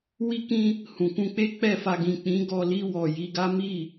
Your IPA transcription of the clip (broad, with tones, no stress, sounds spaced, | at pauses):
w i˦ k ĩ˦ | h ũ˨ k ũ˧ k͡p e˦ k͡p ɛ˦˨ f a˧ ɡ ĩ˨ k͡p ĩ˨˦ ɡ ɔ˧ l i˧ w ɔ˨ j i˨˦ ɡ a˦ m i˦˨